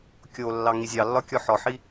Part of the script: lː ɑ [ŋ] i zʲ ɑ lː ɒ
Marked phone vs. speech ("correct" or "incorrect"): correct